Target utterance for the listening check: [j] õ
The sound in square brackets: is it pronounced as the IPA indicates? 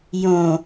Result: yes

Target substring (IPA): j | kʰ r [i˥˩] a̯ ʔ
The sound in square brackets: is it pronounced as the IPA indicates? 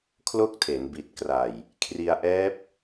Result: no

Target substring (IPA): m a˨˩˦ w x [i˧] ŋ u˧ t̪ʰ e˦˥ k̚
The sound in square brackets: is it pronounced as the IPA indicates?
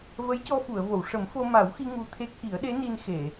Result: yes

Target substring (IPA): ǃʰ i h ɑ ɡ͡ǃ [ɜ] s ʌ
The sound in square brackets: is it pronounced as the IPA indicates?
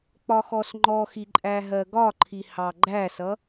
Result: no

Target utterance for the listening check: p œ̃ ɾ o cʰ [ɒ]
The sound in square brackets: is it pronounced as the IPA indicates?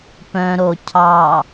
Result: no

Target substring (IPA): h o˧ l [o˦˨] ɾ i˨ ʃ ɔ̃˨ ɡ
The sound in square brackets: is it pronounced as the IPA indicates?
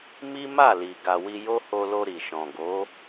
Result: no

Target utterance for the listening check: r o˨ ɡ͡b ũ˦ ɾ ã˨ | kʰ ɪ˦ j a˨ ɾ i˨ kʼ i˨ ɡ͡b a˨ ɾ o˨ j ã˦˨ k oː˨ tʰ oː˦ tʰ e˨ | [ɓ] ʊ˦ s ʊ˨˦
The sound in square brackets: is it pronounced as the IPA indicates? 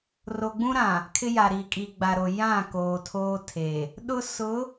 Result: no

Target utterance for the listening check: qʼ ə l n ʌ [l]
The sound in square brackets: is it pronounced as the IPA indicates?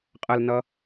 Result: no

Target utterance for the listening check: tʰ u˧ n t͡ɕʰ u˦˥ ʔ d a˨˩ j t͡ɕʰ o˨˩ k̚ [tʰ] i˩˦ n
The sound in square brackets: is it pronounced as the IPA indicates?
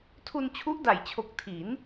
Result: yes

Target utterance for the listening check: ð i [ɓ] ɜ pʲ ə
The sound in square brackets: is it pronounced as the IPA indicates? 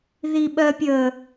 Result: yes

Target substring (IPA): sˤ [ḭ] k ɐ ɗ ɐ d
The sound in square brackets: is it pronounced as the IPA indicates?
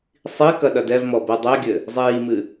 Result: no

